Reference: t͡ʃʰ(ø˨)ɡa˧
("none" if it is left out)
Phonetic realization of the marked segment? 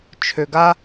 ø˨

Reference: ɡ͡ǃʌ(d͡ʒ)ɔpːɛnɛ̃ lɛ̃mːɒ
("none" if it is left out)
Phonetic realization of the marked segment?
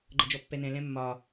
d͡ʒ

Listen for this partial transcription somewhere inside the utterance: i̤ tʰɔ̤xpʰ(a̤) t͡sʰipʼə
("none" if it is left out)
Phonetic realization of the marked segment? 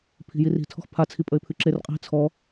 a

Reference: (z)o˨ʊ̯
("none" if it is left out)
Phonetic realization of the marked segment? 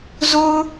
z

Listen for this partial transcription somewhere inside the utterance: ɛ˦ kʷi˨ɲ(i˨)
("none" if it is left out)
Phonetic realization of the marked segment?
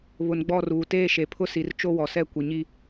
i˦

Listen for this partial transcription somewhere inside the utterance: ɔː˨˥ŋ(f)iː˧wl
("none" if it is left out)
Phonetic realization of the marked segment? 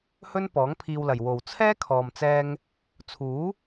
pʰ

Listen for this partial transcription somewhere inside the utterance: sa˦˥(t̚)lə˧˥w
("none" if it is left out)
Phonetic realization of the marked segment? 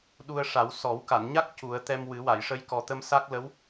k̚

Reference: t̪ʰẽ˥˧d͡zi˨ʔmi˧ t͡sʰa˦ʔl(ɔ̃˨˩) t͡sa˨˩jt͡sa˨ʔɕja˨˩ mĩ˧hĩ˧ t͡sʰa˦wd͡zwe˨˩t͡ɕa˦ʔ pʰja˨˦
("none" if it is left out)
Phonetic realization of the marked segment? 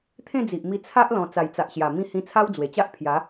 ɔ̃˨˩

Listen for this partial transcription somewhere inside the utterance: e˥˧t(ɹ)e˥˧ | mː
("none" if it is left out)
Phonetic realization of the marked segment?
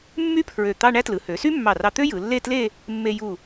l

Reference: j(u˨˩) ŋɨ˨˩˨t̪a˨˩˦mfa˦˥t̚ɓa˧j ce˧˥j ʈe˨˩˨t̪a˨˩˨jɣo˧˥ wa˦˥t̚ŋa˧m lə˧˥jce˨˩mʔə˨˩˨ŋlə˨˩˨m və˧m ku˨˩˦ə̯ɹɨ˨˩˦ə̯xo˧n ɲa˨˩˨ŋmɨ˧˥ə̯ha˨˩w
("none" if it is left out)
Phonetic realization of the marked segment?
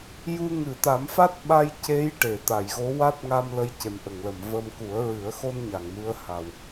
u˧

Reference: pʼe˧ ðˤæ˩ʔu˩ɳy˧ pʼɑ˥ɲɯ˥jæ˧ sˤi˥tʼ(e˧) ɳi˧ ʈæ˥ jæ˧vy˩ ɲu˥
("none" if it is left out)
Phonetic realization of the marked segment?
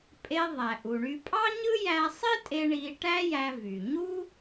e˧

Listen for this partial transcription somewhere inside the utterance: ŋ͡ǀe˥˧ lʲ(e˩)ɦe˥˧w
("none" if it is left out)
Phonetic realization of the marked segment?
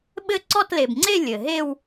ɘ˩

